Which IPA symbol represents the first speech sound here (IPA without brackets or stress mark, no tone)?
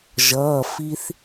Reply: ʒ